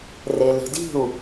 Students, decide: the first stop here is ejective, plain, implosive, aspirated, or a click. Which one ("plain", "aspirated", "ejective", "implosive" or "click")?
plain